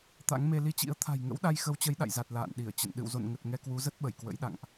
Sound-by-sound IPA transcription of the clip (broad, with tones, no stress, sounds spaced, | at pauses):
t̪ a̰˧˥ ŋ m e˧ l i˧ t͡ɕ ḭ˧˥ ə̯ t̪ʰ a̤˨˩ j ŋ ə̰˧˥ w ɗ a˧ j x ə˨˦ w t͡ɕ ə˨˦ j ɗ a̰˧˨ j z a˨˩ t̚ l a̰ː˧˨ n ɗ i˧˩ ə̯ t͡ɕ ə̰˧˨ n ɗ ɨ̰˧˨ w z o̰˧˨ n ŋ ə˨˩ t̚ ŋ ɛ˧ k w u˨˦ z ə˦˥ t̚ ɓ ə˧˩ j k w ə̰˧˥ j ɗ a̰˧˨ ŋ ʔ